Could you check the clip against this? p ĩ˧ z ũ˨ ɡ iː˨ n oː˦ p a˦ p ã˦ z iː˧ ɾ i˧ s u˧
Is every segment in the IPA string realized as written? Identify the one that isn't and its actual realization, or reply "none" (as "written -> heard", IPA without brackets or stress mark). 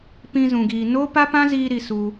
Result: none